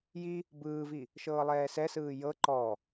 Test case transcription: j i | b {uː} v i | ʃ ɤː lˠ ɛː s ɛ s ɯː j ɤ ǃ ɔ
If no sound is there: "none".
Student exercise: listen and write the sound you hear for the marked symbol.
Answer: ɯː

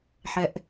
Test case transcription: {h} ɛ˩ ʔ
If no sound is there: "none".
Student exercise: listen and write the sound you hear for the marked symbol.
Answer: ħ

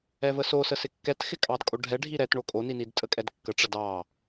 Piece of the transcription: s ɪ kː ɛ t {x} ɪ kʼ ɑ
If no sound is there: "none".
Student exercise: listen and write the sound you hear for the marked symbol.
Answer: x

